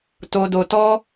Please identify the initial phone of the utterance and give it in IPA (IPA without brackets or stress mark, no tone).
t